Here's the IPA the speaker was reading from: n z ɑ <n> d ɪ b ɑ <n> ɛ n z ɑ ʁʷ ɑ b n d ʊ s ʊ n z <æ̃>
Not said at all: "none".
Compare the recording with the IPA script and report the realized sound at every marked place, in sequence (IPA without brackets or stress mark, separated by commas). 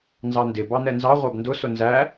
n, n, æ